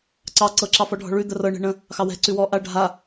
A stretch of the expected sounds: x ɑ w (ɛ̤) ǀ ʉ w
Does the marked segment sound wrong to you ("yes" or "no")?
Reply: no